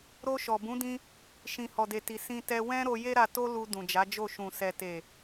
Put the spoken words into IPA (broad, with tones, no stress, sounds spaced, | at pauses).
ɾ o˧ ʃ ɔ˨ b ũ˨˦ d ĩ˧ | ʃ ĩ˨ h ɔ˨ d e˨ t i˨ s ĩ˧ t ɛ˧ w ɛ̃˦ ɾ o˧ j e˦ ɾ a˧ t o˦ l u˧ d ũ˨ d͡ʒ a˨˦ d͡ʒ o˦˨ ʃ ũ˨ s ɛ˨ t e˨